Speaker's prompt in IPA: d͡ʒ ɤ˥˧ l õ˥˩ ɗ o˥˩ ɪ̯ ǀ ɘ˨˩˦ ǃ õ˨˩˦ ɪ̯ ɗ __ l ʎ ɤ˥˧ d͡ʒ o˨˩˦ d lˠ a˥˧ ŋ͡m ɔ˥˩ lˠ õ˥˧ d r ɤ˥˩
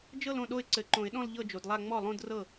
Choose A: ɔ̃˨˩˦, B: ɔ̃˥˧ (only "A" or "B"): B